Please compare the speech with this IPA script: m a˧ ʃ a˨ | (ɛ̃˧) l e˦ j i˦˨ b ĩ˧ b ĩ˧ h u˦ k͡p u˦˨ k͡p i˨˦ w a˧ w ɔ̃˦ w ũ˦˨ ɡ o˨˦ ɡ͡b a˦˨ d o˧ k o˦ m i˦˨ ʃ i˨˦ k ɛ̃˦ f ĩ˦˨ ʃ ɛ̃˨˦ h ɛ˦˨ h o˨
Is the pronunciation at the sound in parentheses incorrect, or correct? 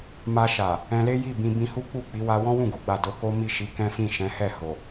correct